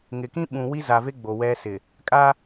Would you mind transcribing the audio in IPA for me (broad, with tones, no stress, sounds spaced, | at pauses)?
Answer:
ŋ ɪ˨ k ĩ˦ ɓ ũ˨ w i˦ z a˨ v e˦ ɡ͡b o˨ w ɛ˦ s ɪ˨ | kʼ a˦